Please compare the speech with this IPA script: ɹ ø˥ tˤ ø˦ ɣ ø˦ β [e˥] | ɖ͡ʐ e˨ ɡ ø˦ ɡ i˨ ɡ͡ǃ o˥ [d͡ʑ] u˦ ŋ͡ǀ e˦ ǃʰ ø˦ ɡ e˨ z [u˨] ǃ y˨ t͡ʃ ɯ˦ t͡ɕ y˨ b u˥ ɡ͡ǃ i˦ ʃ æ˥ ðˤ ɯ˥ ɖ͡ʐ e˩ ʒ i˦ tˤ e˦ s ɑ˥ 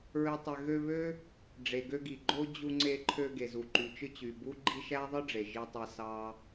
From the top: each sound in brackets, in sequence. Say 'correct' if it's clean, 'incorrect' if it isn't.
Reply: incorrect: ø˥, correct, correct

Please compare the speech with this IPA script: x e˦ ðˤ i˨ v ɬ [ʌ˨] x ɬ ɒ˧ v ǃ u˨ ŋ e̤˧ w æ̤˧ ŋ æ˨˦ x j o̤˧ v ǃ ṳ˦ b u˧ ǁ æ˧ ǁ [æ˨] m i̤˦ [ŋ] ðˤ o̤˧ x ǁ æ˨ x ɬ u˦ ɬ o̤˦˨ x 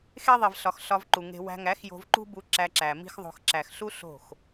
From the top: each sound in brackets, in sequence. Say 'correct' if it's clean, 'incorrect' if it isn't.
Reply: incorrect: ɒ˨, correct, incorrect: x

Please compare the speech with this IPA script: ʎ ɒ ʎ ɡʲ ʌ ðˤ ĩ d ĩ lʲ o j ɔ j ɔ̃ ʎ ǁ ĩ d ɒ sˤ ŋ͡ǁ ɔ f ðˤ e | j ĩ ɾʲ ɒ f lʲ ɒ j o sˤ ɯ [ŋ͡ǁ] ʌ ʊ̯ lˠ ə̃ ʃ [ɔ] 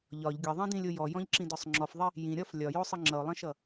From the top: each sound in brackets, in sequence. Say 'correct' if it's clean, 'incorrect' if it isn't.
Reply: correct, incorrect: ʌ

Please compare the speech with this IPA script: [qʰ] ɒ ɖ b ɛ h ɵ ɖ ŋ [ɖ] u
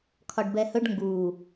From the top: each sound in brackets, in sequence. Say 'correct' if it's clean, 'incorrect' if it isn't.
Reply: incorrect: kʰ, incorrect: ɡ

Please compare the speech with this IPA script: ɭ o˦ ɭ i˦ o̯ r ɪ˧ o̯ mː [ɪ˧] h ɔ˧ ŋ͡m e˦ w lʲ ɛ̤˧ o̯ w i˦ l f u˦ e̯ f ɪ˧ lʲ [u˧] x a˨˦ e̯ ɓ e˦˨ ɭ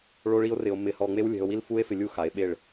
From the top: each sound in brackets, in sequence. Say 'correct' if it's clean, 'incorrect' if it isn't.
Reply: correct, incorrect: u˦

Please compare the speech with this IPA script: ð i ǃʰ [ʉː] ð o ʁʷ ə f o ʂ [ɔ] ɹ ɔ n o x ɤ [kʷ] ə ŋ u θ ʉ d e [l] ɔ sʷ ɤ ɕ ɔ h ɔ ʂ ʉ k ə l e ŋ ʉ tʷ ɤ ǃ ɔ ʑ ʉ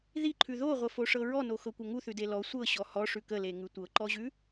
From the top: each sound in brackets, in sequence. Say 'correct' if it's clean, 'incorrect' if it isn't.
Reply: incorrect: ʉ, incorrect: ɤ, correct, correct

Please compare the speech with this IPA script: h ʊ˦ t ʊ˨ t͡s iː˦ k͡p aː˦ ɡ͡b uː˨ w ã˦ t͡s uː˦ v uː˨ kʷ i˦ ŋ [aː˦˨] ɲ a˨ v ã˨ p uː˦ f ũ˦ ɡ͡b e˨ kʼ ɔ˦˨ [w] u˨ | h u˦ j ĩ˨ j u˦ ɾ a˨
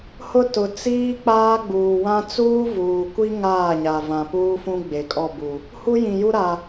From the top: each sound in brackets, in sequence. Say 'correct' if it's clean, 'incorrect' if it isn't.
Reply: correct, incorrect: b

